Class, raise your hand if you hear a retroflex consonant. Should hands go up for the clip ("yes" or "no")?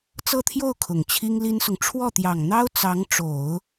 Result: yes